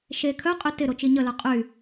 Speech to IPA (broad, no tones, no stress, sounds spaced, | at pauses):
ʃ e kʰ œ qʼ y t ɪ ɾ o t͡ʃ i ɲ ə l œ qʼ y